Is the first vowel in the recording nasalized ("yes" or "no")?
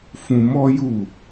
yes